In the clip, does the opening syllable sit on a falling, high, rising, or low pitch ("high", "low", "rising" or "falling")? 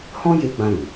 high